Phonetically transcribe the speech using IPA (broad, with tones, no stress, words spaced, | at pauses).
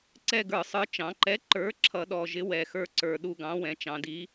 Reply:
ǀɛ˦˨ɡə˞˧˩˧sˤə˞˨˥ t͡ʃɑ̃˩˧ǃɛ˨˥ǃə˞˨˥ ǁʰʌ˧˩˧ɗɔ˨˩ʒɪ˨˥ wɛ˨˩xə˞˦˨ǀə˞˨˩ ɗu˦˨ɡɑ̃˨˥wɛ̃˩˧ t͡ʃɑ̃˩˧di˨˥